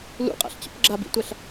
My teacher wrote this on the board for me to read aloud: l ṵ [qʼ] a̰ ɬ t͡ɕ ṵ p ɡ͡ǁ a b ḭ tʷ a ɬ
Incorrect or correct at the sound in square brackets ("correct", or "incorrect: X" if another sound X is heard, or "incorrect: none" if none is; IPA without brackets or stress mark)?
correct